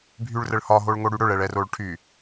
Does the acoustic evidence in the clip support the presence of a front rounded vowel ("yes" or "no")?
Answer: yes